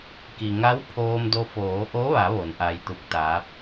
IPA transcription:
ki˩ŋa˧˥w pʰoː˧mdo˧ foː˩˧ʔo˧˥ʋa˩˧ ʋo˩˧nʔa˧jt̪u˧˥k̚t̪aː˧˥p̚

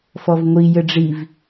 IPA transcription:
fɔvŋʷi jɘɖ͡ʐiv

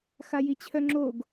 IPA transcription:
xajit͡ɕʰœŋ͡ǁoɡ

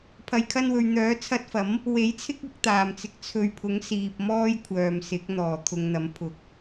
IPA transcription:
pʰɐ˨jkʰɐ˧nwɵ˨ɥ n̪œː˨˥t͡sʰɐ˧t̚fɐ˨˥m | we˨˥jt͡sʰɪ˥k̚ɐ˧k̚ t̪aː˨mt͡sɪ˧k̚ t͡sʰɵ˨ɥpʰʊ˨˥ŋ siː˨p̚ mɔː˥jkʷʰœː˨msɪ˨˥k̚ n̪ɔː˨˩t̪ʰʊ˨ŋn̪ɐ˨˥m pʰʊ˨˥k̚

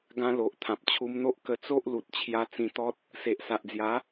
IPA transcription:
ɡã˧lo˨ʔ t̪ʰã˨p̚t͡ɕʰu˧mn̪o˦ʔ kə˧t͡so˦ʔ lu˨t̚ t͡ɕʰja˧ t͡sĩ˧t̪ɔ˦t̚ | se˨ʔsa˨ʔd͡zja˨˦

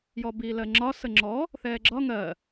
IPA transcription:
jɔbiːlɜŋ͡ǁɒ səŋ͡ǁɔ | θɛːɡ͡ǁɒ ŋɜ

